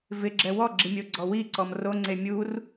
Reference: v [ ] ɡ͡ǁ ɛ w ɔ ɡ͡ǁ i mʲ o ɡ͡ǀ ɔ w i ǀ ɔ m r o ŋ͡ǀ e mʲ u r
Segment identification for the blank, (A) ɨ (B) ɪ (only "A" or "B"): B